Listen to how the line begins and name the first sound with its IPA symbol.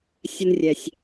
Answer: sʲ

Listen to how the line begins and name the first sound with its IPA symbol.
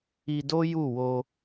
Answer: i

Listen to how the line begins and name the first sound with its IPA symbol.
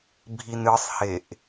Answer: bʱ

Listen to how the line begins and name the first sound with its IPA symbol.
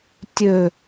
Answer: tʲ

